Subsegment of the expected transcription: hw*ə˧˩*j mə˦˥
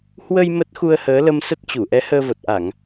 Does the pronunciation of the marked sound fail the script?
yes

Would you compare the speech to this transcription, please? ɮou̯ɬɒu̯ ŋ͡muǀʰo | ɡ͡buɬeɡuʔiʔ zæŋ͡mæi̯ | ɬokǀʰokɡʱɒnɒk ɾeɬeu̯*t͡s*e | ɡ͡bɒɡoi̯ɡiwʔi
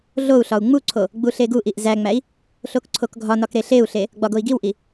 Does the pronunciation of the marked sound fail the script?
yes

